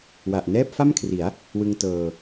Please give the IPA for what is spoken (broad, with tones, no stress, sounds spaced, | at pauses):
w a˨˩ ʔ n ɛː˥˩ p̚ f a˥˩ m kʰ r i˩˦ a̯ | w ɯ˧ ŋ t ɤː˧